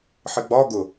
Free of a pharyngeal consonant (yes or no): no